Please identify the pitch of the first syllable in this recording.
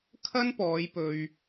high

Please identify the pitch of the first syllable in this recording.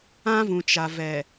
high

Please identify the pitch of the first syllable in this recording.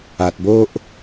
low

